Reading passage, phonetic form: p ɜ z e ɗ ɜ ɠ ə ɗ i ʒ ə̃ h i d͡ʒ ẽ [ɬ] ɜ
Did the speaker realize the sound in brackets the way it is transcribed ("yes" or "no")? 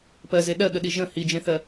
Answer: no